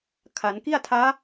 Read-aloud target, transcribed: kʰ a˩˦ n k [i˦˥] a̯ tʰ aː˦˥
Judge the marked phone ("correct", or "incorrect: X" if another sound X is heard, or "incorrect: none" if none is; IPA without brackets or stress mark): incorrect: i˥˩